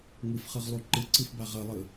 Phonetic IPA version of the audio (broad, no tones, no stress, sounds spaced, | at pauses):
ŋ ɯ f χ ɯ ʁ lˠ u ǃ ɯ ǀ ɯ f b a ʁ ʌ lˠ ɯ